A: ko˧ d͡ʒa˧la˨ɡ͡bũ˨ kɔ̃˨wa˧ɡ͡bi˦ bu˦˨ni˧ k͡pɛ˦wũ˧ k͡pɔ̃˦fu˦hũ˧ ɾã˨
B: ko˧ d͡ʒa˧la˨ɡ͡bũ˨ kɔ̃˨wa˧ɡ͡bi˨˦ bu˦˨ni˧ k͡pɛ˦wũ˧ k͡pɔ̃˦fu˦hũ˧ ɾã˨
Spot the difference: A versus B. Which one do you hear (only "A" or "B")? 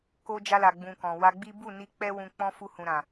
A